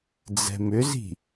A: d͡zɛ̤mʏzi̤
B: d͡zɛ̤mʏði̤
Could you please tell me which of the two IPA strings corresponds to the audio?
A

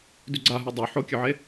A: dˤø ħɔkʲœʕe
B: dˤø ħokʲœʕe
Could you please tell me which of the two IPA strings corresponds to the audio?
B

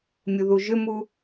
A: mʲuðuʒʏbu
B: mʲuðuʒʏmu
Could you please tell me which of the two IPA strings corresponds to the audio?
B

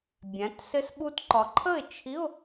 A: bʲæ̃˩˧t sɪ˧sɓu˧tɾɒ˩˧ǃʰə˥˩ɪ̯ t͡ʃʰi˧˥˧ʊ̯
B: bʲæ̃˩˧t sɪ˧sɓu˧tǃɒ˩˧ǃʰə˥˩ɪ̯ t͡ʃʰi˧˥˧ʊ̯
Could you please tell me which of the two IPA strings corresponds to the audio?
B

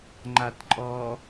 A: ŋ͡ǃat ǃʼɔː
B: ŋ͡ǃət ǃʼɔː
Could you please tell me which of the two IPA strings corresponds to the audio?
A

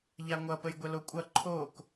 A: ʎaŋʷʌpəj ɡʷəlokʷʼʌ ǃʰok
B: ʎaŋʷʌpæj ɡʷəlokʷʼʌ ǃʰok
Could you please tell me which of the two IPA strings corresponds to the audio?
A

